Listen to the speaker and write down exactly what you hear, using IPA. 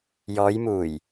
j ɔː˨˧ j m uː˨˩ j

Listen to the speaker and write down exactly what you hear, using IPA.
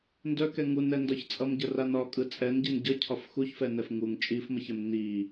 n d œ k ɛ ŋ u n ɛ n d ɒ ç t͡sʼ ʌ m ɟ ə r a n ɒ kʼ ɯ t͡sʼ ɛ n ɟ i n ɟ ʌ cʰ ɒ f x u ç f ɛ n ɛ f ŋ u ŋ t͡ʃʼ i f m ə ç ɛ m n i

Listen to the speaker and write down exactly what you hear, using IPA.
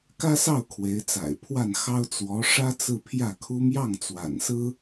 k ä˥ s ɑ˥˩ ʊ̯ kʰ w e˧˥ ɪ̯ t͡s a̰˨˩ ɪ̯ pʰ w a˥˩ n x ɑ˥ ʊ̯ t͡s w ɔ˧˥ ʂ ä˥ t͡s ɹ̩˥˧ pʰ j ä˥˩ kʰ u˥ m j ɑ˥˩ ŋ t͡s w a̰˨˩ n s ɹ̩˥

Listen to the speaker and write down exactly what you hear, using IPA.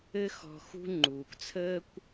ɘ˥ x ɔ̤˧ x ṳ˥ ŋ͡ǃ uː˩ k t͡sʰ əː˥ kʷ

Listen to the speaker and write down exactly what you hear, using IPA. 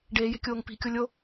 ɖ eː j e̤ kʲ oː ŋ p i̤ kʲ o lʲ o

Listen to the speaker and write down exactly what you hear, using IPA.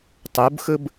tˤ u b x ɯ b

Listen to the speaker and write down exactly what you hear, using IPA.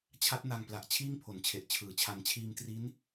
t͡ɕʰ a˦˥ t̚ n a˧ ŋ p l a˨˩ ʔ t͡ɕʰ iː˥˩ ŋ pʰ o˨˩ n t͡ɕʰ e˨˩ ʔ t͡ɕʰ ɯː˨˩ t͡ɕʰ a˧ n t͡ɕʰ iː˧ m t r i˦˥ n

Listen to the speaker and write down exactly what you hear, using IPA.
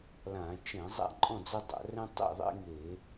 l ã˧˩˧ t͡ʃ ɛ̃˧˩˧ zˤ a̰˥˨ ǃʼ ɔ̃˥˨ d͡z ø˦ dˤ a̰˧˩˧ r ɛ̃˦ tˤ ḛ˥˨ ðˤ ḛ˦ ŋ e˧˩˧

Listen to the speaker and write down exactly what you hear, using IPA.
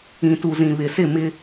ĩ˨ t u˨ z ĩ˨ β ɪ˨ s ɪ˦˨ m ɪ˦

